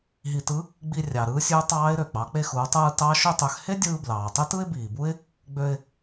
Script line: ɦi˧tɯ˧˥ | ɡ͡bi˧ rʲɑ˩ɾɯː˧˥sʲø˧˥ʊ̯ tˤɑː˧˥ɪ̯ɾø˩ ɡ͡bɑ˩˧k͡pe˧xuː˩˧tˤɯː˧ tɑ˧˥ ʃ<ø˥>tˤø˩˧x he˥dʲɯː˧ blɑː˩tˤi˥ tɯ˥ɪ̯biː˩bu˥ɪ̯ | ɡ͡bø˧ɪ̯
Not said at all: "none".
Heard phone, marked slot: ø˧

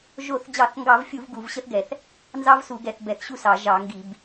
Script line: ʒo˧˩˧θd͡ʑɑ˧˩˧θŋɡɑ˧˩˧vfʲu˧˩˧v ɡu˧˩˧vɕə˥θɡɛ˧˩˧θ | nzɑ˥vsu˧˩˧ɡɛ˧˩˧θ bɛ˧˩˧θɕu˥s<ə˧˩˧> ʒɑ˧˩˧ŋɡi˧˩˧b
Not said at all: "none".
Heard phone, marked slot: ɑ˧˩˧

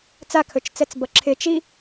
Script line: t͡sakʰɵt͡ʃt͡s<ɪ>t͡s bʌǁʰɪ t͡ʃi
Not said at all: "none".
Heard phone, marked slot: ɛ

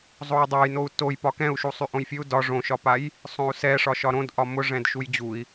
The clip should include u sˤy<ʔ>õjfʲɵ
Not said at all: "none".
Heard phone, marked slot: ʔ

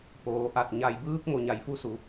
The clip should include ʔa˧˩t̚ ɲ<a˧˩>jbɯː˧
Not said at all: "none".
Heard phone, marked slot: a˩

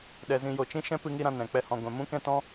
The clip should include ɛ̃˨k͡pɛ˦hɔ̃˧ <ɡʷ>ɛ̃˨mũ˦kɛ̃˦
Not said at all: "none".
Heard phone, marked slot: ɡʷ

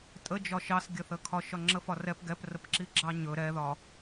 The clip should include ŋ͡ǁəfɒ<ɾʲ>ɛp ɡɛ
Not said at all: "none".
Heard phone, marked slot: r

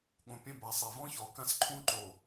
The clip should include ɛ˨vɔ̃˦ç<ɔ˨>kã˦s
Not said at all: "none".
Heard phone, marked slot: ɔ˨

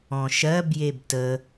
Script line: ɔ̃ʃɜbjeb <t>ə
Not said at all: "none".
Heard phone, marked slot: t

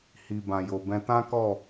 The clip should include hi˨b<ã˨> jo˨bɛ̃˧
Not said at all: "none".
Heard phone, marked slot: ã˨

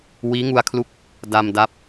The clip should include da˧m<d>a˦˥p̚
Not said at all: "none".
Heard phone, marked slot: d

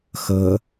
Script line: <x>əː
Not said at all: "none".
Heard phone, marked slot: x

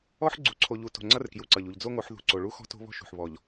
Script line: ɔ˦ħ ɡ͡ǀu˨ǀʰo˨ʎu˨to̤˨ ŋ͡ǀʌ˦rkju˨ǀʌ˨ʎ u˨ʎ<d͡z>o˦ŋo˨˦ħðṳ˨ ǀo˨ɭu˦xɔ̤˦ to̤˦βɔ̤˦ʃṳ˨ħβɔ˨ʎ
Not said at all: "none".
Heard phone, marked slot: d͡z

